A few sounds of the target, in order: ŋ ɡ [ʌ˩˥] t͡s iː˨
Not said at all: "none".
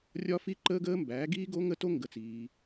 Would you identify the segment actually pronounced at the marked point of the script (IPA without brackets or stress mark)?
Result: ə˩˥